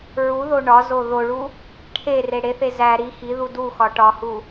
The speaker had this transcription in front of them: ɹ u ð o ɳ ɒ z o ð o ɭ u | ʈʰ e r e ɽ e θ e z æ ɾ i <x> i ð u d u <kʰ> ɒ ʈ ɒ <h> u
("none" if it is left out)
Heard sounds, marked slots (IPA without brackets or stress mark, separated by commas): x, x, h